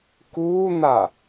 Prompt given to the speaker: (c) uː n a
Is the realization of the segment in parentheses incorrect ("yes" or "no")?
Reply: yes